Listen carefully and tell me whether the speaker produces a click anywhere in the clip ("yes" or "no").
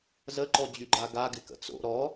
yes